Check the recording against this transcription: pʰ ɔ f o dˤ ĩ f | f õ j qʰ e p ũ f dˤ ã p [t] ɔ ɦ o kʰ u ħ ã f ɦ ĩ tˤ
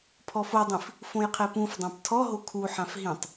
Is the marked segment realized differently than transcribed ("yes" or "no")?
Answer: yes